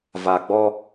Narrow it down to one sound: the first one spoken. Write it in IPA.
v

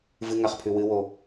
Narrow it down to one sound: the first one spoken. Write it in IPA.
v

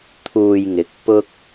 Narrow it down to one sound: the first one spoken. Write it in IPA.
t̪ʰ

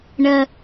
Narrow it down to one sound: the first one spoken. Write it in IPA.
ɳ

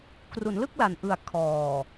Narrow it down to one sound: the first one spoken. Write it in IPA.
k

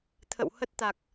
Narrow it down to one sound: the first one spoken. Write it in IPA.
t̪ʰ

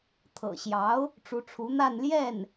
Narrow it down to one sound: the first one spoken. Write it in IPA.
t̪ʰ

